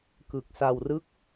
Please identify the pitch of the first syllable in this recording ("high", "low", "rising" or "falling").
low